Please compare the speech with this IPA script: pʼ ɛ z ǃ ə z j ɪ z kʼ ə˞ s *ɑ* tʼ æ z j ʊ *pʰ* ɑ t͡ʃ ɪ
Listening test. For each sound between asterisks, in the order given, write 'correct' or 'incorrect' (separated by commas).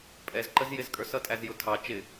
incorrect, incorrect